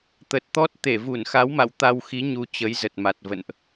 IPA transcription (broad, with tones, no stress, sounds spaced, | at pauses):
t̪ ə˨˩ t̚ t̪ ɔ˦˥ t̚ t̪ e˧˩ v u˧˩ n x a˨˦ w m a̰˧˨ w t̪ a˧ w x i˨˦ ɲ u˨˦ t͡ɕ ə˨˦ j z ə˨˩ t̚ m a˨˩ t̚ v ə̰˧˨ n ʔ